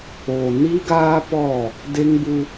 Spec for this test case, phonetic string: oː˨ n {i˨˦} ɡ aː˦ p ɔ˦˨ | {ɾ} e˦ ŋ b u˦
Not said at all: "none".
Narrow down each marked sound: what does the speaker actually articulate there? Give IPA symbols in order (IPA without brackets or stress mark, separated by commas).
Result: i˦, d